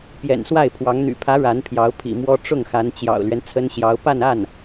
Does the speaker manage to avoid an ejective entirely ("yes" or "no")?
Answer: yes